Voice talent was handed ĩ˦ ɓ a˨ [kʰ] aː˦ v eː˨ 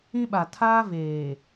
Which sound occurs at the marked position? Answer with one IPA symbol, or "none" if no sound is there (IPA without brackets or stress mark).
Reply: tʰ